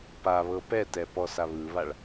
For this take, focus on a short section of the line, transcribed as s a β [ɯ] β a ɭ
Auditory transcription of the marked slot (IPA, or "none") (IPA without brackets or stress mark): ɯ